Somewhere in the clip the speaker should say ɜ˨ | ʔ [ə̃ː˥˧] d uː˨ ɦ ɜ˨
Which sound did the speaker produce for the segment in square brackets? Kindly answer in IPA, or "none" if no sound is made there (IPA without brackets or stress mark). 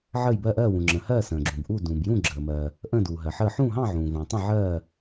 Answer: ə̃ː˥˧